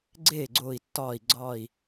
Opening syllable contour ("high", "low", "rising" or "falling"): falling